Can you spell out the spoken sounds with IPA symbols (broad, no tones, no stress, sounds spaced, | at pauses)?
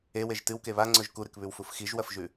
e w e ʒ t ɨ w k e β a ŋ͡ǀ ɵ ʒ k u ɾ ɨ k β ʉ w f u f x i ʒ w ɐ f ʒ ʉ